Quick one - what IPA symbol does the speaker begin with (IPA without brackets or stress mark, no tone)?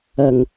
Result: ɐ